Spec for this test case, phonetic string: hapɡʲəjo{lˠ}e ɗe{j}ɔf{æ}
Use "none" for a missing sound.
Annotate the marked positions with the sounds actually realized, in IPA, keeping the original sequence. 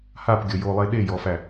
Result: lˠ, j, æ

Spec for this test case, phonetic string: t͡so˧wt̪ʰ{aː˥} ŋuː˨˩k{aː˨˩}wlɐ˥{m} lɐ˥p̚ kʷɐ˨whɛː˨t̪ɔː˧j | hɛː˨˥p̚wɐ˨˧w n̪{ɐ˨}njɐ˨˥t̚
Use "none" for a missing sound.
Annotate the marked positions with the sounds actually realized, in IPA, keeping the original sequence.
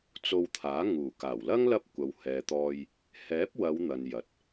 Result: aː˨˥, aː˨˩, ŋ, ɐ˨

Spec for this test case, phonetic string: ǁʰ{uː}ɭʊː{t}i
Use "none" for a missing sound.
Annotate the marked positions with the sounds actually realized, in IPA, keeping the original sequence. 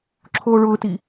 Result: oː, t

